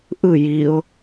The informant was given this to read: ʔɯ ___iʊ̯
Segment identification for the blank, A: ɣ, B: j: B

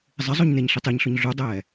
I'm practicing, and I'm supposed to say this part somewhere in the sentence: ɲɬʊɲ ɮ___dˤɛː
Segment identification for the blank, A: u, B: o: A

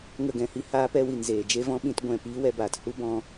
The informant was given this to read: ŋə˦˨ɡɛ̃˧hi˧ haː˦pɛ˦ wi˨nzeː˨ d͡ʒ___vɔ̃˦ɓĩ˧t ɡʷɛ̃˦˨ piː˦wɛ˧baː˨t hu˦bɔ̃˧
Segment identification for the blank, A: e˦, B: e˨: A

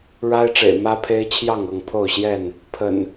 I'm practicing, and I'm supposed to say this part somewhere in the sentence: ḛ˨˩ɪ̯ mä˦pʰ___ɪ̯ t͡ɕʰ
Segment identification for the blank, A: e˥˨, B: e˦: B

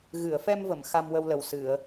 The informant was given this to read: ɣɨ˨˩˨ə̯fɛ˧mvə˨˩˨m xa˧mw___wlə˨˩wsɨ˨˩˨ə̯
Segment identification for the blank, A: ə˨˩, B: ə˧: B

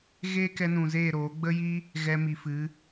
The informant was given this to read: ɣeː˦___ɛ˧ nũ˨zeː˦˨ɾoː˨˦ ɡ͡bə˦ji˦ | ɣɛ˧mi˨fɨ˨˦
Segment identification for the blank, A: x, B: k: B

